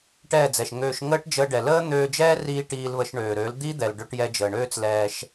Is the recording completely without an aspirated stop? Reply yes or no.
yes